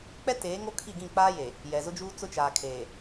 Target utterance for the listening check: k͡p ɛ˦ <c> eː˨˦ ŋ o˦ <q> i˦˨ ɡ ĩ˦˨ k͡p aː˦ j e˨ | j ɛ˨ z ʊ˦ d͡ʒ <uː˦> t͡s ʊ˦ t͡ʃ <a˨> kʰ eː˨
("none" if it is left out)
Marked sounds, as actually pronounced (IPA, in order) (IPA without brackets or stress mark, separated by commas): t, kʰ, uː˦, aː˨